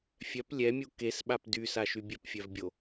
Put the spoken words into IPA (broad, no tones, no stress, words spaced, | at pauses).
fʲœp lʲɛmʲu kesɓap dysaʃy bʲœpfʲœvbʲo